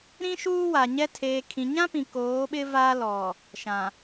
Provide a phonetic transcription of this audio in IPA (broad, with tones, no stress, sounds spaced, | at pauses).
ɾ ĩ˦ ʃ uː˦ w a˨ ɲ ɛ˦ tʰ eː˨ kʰ ĩ˨ ɲ ã˦ p ĩ˨ k oː˨˦ ɓ ɪ˦ v a˦ l ɔ˨ | ʃ ã˨